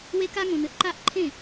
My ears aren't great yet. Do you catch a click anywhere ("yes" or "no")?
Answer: yes